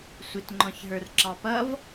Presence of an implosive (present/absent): absent